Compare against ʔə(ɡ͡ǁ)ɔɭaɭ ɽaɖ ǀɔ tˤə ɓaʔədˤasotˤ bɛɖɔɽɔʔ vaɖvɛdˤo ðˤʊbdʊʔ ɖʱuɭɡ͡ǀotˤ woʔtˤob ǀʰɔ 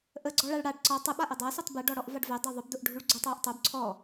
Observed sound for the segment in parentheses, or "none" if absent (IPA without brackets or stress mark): ɡ͡ǀ